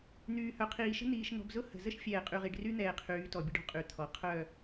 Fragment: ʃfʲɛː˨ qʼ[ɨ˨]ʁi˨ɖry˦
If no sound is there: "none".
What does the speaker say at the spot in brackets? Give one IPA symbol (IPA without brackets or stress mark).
y˨